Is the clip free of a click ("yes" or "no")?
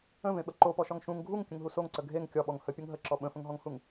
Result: no